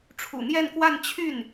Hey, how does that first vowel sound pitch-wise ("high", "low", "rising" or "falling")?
low